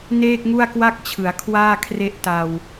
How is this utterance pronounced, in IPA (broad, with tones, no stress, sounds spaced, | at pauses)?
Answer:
n eː˥˩ k̚ ŋ u˥˩ a̯ k w a˥˩ k̚ t͡ɕʰ ɯ˩˦ a̯ kʰ w aː˥˩ kʰ r e˥˩ ʔ t a˧ w